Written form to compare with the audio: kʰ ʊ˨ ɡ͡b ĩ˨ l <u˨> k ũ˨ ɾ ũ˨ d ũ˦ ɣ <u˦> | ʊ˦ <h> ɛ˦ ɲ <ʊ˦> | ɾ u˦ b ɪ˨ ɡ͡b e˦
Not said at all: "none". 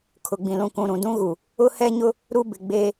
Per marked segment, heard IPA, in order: ũ˨, u˨, h, ʊ˦

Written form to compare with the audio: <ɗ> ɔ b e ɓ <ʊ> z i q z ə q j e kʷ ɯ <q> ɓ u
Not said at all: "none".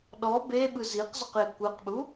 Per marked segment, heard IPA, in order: ɗ, ɯ, q

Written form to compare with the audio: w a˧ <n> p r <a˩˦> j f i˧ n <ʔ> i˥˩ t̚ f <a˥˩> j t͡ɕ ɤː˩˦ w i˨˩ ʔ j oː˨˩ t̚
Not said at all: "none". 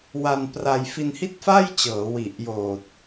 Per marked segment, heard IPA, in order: n, a˧, h, a˥˩

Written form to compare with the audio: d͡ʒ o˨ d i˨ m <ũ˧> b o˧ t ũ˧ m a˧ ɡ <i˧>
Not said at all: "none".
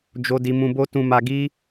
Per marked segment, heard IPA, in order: ũ˨, i˦

